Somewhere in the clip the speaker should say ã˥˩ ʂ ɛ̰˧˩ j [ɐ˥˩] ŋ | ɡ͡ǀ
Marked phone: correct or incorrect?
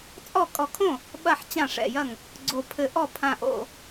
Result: correct